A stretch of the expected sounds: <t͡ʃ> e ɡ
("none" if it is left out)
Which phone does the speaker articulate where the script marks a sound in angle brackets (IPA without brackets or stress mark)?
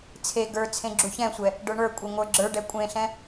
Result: t͡sʰ